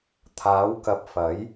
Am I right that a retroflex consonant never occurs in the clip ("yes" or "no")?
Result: yes